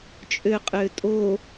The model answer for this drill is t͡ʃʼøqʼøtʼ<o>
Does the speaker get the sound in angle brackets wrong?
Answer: no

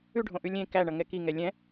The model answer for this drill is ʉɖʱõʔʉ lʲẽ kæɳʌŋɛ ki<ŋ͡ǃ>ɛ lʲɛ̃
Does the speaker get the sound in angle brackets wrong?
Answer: yes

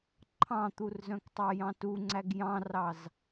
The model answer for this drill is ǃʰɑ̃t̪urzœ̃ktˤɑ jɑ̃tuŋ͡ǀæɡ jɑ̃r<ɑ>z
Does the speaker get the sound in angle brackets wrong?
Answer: no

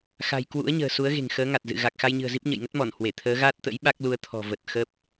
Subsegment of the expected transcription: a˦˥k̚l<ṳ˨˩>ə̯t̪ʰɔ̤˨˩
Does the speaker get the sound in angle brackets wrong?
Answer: yes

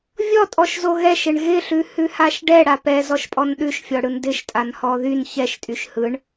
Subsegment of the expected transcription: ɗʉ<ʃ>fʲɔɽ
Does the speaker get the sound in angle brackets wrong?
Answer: no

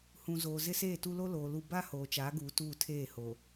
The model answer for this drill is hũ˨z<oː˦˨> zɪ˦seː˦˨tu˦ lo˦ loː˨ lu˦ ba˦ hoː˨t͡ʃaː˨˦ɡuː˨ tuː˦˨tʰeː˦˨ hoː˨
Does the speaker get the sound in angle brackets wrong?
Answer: yes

